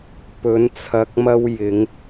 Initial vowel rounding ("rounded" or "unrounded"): rounded